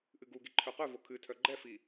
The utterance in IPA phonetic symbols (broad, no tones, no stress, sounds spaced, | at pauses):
ʔ ɨ ɡ u ɡ i ǃʰ œ q œ v o kʰ ɨ tʰ œ ɡ͡ǃ ɛ f i